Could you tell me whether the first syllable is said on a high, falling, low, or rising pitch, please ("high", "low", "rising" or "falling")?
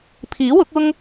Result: rising